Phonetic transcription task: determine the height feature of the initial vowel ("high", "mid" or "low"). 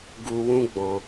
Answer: high